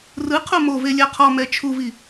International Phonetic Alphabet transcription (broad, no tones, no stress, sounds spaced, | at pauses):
r ɯ qʰ u m o v e lʲ a qʰ ɔ m ɛ t͡ʃʰ u v i